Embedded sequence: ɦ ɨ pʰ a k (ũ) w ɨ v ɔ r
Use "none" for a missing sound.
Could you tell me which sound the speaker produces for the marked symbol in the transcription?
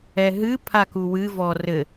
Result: u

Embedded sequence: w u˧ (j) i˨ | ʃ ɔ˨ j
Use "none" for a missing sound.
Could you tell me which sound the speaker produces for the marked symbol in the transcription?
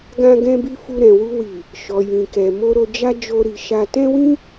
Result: w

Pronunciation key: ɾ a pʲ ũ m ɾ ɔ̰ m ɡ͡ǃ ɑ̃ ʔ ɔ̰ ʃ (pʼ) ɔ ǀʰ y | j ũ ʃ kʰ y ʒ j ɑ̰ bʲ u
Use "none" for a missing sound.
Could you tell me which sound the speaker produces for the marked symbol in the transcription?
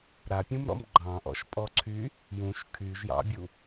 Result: pʼ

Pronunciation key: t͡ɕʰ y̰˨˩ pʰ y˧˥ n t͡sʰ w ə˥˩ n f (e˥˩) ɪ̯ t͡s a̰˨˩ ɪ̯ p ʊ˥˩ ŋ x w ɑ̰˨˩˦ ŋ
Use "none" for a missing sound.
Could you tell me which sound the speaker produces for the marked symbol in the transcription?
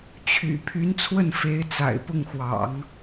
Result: e˧˥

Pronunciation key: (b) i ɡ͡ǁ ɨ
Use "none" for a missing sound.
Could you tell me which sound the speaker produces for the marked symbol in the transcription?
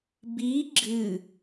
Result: b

